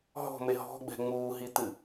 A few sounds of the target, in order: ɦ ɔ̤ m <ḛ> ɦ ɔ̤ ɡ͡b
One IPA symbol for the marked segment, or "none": e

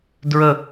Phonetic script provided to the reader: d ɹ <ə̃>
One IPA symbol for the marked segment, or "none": ə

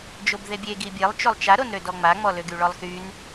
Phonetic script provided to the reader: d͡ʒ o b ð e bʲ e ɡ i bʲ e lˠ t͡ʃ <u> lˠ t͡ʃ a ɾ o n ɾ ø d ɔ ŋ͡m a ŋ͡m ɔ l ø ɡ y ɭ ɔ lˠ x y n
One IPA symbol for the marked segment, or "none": o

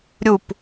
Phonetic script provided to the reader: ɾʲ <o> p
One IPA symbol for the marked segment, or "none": u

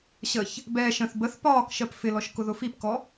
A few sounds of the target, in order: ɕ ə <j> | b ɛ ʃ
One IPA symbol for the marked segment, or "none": ç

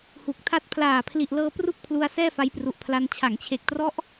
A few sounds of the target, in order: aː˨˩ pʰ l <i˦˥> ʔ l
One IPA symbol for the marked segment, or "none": i˨˩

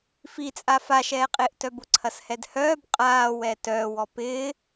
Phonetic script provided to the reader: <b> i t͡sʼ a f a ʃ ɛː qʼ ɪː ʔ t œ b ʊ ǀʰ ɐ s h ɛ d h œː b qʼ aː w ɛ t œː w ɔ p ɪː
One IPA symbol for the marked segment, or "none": f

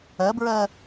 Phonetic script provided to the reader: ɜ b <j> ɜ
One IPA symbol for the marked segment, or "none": ɹ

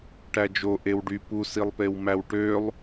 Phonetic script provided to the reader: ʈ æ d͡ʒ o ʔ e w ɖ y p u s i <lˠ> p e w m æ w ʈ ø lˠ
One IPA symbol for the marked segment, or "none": lˠ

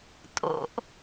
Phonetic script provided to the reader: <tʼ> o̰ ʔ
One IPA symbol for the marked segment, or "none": tʼ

